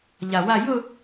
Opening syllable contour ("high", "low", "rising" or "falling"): low